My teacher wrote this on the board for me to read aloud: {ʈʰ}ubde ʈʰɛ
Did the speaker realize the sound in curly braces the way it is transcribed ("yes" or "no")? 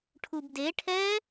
yes